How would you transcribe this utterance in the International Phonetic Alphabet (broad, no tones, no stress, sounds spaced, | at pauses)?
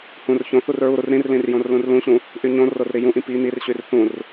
h ũ r ç õ θ u r ɹ u ɾ u r ɾ ĩ r l ĩ r j õ r l ũ r l ũ ɕ ũ | ʔ y ɲ õ r o r ɾ i j ũ ʔ ĩ p i n̪ i r ɕ y r θ ũ r